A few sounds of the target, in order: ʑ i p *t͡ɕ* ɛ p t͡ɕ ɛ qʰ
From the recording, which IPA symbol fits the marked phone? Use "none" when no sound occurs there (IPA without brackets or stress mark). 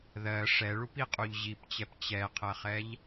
t͡ɕ